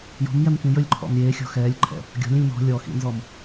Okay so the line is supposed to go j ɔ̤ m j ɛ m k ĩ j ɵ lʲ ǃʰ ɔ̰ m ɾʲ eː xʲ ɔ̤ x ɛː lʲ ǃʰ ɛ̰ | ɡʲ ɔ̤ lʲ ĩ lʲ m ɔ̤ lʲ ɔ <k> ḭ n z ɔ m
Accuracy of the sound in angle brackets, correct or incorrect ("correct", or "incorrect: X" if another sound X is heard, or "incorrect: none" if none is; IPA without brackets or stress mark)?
incorrect: x